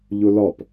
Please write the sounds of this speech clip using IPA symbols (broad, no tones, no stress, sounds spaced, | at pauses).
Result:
ʎ ʊ l ɒ p